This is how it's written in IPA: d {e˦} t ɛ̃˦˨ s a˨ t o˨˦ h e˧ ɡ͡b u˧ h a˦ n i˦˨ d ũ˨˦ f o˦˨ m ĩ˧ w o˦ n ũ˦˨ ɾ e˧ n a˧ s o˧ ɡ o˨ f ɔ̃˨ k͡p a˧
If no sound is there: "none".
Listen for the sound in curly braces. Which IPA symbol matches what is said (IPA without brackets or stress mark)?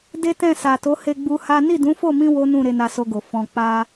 e˦